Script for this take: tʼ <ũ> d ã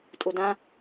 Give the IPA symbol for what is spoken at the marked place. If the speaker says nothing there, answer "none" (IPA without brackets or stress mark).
u